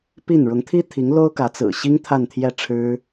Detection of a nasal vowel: absent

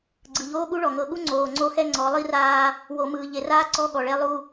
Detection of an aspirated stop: absent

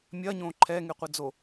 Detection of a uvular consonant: present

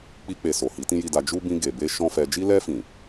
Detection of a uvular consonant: absent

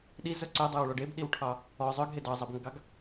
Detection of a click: present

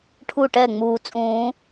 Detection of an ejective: present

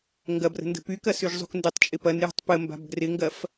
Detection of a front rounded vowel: present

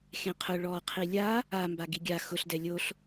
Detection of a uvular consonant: present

